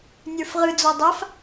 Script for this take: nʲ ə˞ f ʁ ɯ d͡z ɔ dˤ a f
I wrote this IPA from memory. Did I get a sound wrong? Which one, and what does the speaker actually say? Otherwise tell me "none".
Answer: none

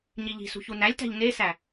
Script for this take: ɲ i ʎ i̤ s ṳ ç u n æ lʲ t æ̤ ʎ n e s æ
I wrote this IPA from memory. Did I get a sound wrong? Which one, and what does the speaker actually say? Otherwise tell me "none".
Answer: none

